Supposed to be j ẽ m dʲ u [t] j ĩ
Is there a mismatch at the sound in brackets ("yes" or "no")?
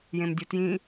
no